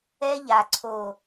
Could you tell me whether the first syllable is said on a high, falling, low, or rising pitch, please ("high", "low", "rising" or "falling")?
high